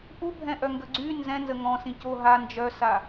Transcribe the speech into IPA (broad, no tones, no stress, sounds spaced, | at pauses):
ʔ u bʱ ɛ̃ ʔ œ ŋ ɡ ə ɡ͡ǀ y n z ɛ̃ n z ə ŋ ɔ̃ s ĩ c o ɦ a n d͡ʒ œ s a